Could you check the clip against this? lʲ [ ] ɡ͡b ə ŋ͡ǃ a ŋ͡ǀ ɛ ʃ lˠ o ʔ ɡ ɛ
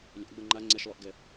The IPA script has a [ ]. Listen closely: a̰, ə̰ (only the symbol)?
a̰